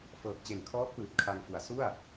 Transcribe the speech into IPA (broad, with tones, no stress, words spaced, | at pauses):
fɤː˨˩k̚t͡ɕe˨˩nkʰɔː˦˥k̚pɯː˨˩t̚ kʰa˧ŋfu˨˩a̯ su˥˩a̯